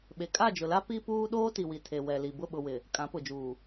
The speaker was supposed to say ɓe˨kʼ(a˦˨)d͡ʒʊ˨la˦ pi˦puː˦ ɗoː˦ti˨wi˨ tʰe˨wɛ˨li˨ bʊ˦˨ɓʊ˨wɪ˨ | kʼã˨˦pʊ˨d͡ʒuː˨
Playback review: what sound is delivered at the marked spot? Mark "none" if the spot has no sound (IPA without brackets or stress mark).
a˦˨